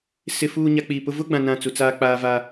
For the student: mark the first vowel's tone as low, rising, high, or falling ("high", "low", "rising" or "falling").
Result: low